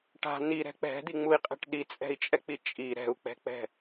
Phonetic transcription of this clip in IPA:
ʈ a̤ n̪ i ɾ ɛ̤ k͡p ɛ̤ d̪ i ŋ͡m u i̯ qʼ ɛ̤ ʈ ɗ i t͡sʼ ɛ̤ i̯ t͡ʃʼ ɛ k͡p i t͡ʃʼ i ɾ ɛ̤ u̯ k͡p ɛ̤ k͡p ɛ̤

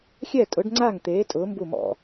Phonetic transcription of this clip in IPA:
xʲ ɛ˥˨ tʼ ʊ˨˥ ɖ ŋ͡ǀ a˥˨ ŋ t̪ eː˨˥ tʼ ʊː˨˥ m b u˥˨ m ɔ̰˥˨

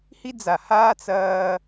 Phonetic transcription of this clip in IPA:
h i˦ d͡z a˨ h aː˦ t͡s ɐː˦

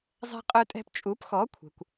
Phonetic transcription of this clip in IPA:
zˤ ɛ̤˧ qʼ œ˧ tʼ ɛ̤˧ p t͡ʃʼ u˩˥ p x ɔ˩˥ kʷʰ ɛ̤˩ kʷ

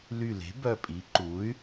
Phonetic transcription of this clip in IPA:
l y˧˩ l e̤˩˥ b œ˧˩ pʼ i˩˥ ǃ u˩˥ y̯

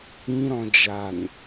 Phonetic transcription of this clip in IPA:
ĩ ɾ ɔ̃ d͡ʒ a n

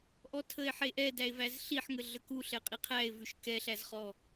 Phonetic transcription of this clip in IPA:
ʔ ɔ tʰ ə e̯ ħ e ʔ ɛ d æ e̯ v æ z ɬ i ħ ŋ ə ɮ ə k u ɬ ɛ qʼ i qʰ æ e̯ v ʉ ʃ k ɛ ɬ æ z χ ɔ

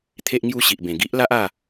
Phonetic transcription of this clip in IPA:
t̪ʰ e˦ ʔ ŋ j u˥˧ ɕ i˨ ʔ b ẽ˨˩ ɡ i˦ ʔ l a˦ ʔ a˥˧

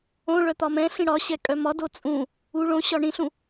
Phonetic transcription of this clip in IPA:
õ ɭ œ t̪ ɒ m ɛ̃ ɬ ĩ ɽ ɒ ɕ ɛ kʼ œ m ɒ d o t͡sʼ ũ | u ɭ õ ɕ ɒ ɳ ĩ ɬ ũ

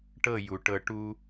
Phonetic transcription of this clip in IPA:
ʈ ɤ˦˨ j u˨ ʈ ɤ˧ ʈ u˦

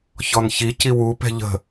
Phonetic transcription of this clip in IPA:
ç ɔ n ç i c i w u p ɛ̤ ʎ ə̤

